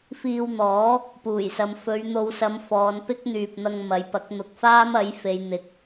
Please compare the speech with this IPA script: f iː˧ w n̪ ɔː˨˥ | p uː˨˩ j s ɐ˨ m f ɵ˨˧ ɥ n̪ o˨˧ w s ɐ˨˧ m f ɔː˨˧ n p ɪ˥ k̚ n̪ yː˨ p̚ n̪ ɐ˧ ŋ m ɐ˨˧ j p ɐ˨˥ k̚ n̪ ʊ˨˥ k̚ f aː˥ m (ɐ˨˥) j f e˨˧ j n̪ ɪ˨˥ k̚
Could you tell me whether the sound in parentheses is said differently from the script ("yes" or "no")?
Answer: no